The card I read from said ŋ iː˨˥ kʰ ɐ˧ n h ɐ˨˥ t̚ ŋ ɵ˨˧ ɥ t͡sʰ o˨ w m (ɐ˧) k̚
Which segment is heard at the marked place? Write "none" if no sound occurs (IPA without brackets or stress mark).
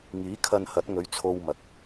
ɐ˨